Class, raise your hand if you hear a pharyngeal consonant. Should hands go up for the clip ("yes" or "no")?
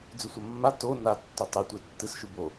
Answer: no